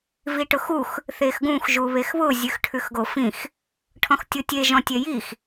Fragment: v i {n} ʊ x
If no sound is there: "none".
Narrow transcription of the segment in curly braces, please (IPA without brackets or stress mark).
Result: ʈ